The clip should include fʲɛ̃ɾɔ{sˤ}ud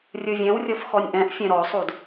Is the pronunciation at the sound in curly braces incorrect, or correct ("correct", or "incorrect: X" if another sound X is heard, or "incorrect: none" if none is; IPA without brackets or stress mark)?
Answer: correct